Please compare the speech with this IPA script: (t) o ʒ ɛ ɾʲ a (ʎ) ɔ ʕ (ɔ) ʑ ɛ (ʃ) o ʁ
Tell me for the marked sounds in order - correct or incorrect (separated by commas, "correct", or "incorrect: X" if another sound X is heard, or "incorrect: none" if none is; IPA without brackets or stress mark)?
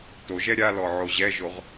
correct, incorrect: l, incorrect: o, incorrect: ʒ